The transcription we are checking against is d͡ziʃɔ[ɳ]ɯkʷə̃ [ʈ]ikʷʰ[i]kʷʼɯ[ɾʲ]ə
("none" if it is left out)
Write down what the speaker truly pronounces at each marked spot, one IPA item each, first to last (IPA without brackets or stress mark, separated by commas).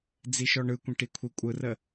ɳ, ʈ, i, r